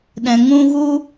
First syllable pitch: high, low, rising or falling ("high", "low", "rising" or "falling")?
low